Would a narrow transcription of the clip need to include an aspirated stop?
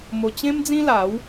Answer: no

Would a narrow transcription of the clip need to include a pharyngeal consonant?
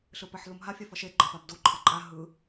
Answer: yes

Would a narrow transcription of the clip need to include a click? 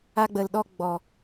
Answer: no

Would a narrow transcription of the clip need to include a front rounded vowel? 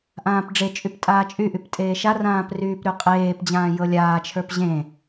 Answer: yes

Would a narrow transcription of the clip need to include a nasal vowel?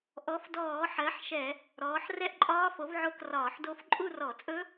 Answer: no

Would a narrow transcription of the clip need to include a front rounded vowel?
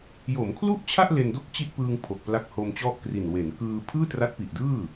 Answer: no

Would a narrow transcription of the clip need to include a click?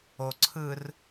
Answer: yes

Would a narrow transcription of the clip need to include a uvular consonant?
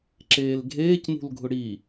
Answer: no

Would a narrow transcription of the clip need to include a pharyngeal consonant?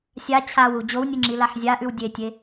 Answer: yes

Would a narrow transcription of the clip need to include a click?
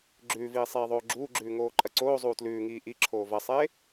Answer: yes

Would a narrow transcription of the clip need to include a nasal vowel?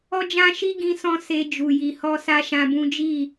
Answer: yes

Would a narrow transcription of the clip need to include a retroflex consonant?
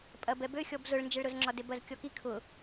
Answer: yes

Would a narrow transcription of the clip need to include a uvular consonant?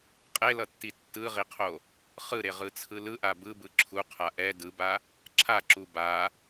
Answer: yes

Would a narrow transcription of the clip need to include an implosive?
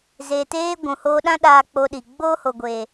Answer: yes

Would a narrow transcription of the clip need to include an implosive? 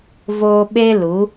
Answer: yes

